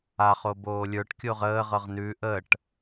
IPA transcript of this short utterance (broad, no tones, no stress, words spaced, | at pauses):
aχo boːlʲə˞ʈkʲoʁ əːʁɤʁ nʉ ʔəʈ